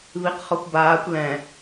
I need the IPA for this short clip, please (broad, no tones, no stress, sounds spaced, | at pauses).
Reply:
β i q χ ɔ kʷ b aː kʷ l ɛ̃